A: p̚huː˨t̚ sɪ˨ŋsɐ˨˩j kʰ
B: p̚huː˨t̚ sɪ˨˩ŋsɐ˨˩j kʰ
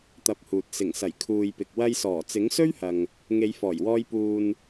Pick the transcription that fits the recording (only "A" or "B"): B